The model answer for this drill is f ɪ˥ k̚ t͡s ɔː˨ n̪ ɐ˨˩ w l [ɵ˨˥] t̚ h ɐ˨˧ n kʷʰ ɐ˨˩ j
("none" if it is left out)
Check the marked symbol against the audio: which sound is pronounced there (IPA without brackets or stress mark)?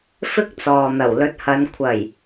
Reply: ɵ˨˥